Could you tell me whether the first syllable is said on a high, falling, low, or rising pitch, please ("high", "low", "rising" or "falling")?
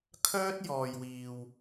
high